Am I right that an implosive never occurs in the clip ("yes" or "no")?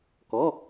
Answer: yes